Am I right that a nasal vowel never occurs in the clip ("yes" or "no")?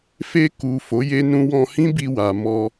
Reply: no